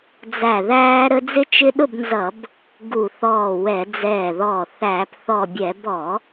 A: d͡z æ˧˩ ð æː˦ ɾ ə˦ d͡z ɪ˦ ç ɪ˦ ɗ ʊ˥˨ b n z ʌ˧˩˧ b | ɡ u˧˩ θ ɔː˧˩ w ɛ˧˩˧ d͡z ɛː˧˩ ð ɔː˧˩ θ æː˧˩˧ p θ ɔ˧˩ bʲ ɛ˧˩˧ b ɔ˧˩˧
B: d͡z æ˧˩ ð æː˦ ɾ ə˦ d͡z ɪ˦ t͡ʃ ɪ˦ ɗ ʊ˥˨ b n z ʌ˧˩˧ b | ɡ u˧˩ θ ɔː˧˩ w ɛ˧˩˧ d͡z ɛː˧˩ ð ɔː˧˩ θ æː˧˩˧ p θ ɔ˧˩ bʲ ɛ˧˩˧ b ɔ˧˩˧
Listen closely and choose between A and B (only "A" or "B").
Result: B